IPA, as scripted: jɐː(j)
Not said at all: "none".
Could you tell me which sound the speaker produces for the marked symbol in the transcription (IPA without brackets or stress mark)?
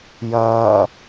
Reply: none